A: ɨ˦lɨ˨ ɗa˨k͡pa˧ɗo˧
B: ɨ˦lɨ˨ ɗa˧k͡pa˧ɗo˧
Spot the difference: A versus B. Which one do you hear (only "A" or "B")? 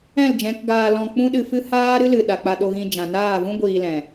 A